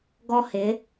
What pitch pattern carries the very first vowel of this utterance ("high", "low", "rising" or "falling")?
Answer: high